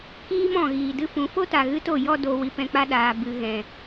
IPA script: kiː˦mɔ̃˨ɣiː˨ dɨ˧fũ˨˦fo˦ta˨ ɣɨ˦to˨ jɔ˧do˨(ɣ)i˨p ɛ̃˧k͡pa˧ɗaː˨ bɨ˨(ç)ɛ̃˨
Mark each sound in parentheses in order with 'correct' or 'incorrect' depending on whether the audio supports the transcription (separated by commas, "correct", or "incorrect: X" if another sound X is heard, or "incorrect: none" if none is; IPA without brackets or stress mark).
incorrect: w, incorrect: ɣ